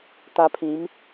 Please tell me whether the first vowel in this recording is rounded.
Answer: no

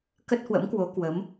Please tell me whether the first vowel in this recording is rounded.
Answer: no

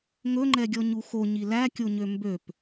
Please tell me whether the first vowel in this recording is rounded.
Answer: yes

